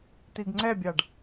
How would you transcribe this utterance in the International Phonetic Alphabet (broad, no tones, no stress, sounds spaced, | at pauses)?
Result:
t̪ i ɡ ŋ͡ǀ ɛ bʲ ɑ ɖ